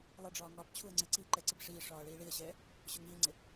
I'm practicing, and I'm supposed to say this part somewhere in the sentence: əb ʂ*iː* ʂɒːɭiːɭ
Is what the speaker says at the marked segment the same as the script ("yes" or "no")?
yes